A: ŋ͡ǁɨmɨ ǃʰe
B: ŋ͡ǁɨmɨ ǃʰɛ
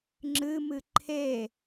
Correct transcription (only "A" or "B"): A